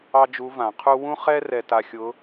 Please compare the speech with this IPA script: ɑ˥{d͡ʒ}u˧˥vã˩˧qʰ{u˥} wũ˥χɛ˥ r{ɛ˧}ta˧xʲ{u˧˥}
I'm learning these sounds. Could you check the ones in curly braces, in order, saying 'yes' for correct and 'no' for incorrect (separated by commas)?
yes, yes, yes, no